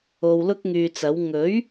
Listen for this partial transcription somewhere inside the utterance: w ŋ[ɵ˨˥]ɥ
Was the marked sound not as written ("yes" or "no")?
no